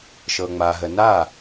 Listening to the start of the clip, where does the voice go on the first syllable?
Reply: low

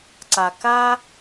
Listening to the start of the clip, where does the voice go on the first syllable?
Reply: low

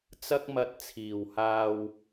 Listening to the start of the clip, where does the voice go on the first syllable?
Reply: high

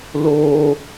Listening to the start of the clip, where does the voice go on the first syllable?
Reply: high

